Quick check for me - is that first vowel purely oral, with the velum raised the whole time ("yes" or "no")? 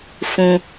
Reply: no